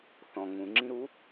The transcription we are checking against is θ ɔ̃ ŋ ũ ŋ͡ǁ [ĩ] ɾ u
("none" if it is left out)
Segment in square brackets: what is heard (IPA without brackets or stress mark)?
ĩ